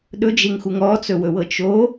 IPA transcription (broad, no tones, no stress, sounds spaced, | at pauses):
ɗ ɵ d͡ʒ e ŋ x u ŋ ɔ t͡s ɵ w ɵ w ɤ t͡ʃ o